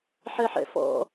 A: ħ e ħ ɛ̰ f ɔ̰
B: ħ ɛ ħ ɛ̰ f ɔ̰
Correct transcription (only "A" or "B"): B